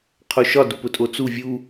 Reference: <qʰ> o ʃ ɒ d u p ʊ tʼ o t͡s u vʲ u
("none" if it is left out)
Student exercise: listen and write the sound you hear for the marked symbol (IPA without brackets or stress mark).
qʰ